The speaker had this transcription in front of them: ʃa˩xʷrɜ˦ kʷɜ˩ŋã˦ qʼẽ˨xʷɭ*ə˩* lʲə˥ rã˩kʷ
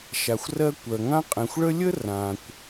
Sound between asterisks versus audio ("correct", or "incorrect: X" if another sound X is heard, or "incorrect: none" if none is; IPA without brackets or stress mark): incorrect: ə˥